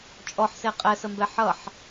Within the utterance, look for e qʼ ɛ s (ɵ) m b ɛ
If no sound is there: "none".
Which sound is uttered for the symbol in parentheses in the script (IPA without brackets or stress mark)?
ə